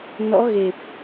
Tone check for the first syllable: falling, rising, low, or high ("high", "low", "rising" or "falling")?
rising